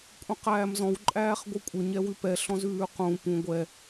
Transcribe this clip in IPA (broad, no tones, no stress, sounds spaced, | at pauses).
kʷʼ ĩ q æː m z ɔ̃ w ǃʼ æː χ ɡʷ ɨ kʷʼ ə ɲ ɛ w ʉ p ɛ ɬ ɔ̃ z ʉː q ũ p ũ ɡʷ ɛ